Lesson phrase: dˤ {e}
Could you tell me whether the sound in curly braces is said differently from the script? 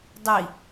yes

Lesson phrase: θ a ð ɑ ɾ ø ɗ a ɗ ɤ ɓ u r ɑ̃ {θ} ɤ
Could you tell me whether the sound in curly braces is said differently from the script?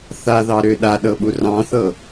no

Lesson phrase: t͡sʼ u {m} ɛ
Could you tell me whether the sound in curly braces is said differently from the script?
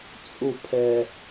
yes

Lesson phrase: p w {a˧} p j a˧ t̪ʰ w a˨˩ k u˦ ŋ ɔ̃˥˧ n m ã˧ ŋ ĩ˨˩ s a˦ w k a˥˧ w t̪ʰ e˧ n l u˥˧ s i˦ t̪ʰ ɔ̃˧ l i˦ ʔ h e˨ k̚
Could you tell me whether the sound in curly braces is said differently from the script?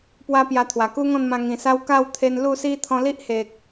yes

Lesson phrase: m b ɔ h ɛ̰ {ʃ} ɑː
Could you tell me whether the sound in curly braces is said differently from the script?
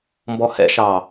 no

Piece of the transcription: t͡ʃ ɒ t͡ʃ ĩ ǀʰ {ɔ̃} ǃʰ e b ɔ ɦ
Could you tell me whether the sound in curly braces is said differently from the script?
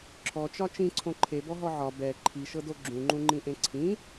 yes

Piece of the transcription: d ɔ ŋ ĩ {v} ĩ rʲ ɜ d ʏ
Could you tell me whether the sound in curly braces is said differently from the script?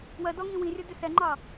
yes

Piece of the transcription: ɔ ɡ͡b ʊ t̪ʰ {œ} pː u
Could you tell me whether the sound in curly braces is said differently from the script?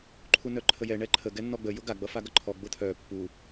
no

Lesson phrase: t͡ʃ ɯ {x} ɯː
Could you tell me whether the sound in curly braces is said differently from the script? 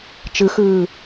no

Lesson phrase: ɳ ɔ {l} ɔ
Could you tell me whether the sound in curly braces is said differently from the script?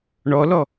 no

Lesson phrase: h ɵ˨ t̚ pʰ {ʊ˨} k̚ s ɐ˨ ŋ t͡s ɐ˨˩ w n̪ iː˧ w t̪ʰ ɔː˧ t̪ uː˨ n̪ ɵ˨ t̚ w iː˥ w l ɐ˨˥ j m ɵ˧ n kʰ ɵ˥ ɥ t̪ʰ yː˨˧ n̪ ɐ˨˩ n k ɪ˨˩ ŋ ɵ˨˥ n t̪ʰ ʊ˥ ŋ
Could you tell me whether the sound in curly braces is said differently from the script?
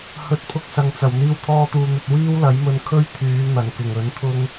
yes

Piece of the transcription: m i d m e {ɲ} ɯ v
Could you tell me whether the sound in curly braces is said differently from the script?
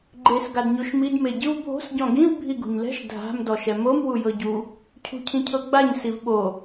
yes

